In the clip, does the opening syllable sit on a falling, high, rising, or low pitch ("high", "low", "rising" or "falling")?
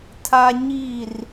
high